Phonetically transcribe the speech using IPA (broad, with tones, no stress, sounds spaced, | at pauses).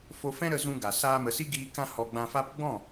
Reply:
f o˧ f ɛ̃˦ ɾ ə˧ z ũ˧ ɡ a˨ s aː˧ m ə˨ s i˦ ɡ iː˧ k ã˦ h ɔ˧ ɡ͡b ã˧ f a˦ p ɡ͡b ɔ̃˦˨